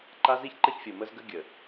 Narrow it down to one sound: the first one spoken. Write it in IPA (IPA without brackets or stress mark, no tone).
ǃ